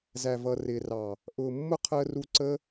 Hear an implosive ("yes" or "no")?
no